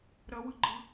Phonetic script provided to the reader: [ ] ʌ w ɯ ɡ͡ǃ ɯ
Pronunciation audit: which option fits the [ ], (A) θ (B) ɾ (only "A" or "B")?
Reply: B